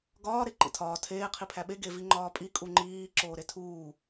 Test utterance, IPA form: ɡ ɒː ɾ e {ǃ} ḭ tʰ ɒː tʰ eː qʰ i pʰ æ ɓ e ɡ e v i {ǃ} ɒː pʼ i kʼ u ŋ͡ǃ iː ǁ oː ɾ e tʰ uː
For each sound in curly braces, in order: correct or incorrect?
correct, incorrect: ŋ͡ǃ

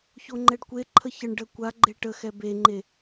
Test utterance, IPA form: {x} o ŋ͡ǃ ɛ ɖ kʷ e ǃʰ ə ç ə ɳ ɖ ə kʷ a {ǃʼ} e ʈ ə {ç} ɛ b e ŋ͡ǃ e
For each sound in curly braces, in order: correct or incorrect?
incorrect: ç, incorrect: ɡ͡ǃ, incorrect: x

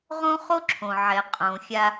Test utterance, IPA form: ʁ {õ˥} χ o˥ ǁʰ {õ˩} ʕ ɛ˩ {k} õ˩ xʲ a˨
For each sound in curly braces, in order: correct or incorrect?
correct, correct, incorrect: qʼ

